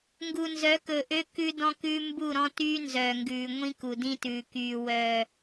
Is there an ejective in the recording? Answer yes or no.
no